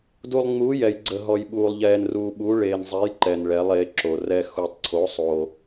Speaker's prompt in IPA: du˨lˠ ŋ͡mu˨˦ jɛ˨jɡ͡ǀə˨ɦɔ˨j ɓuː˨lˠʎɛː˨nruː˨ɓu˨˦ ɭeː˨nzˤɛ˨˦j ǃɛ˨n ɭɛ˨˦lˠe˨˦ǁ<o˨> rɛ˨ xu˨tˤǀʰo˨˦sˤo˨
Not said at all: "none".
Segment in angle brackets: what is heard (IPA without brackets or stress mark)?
o˨